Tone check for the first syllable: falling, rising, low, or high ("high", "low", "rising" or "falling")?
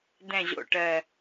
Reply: low